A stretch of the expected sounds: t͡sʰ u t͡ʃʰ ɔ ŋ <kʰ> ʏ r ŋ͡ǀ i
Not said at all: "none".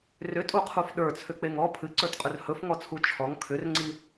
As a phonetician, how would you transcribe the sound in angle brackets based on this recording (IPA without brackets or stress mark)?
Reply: kʰ